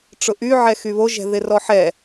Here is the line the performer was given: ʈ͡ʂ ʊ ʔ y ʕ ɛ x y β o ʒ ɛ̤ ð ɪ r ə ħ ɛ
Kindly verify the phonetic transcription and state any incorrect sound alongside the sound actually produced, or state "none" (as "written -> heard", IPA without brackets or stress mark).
ə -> ɔ